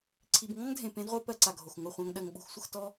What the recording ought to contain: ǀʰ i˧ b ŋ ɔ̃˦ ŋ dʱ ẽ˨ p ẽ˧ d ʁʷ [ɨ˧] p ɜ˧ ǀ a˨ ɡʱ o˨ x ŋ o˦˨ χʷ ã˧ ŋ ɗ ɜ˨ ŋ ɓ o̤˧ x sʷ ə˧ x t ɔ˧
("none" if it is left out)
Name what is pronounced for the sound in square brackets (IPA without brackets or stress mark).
e˧